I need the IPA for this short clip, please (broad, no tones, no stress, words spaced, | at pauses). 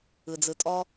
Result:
ɯd͡zɯtʼɔ